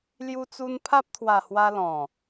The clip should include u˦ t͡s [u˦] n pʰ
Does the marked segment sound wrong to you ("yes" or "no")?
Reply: no